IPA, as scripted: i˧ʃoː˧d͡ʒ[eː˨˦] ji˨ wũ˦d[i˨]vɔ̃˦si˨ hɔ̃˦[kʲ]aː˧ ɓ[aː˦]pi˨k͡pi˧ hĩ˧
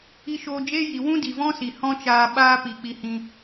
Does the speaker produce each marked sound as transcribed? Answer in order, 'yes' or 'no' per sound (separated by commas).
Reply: no, yes, no, yes